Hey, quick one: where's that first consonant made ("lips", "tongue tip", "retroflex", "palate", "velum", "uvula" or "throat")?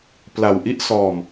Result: lips